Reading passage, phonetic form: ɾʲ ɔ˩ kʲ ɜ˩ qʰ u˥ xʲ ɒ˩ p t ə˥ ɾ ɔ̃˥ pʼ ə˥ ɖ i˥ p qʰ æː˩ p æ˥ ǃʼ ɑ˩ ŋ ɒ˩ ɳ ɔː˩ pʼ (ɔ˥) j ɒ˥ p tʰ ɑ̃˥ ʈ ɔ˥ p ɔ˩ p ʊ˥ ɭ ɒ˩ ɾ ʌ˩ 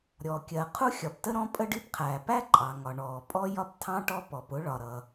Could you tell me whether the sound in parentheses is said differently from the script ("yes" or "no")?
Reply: no